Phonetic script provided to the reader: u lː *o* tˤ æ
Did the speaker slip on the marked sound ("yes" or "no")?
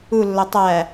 no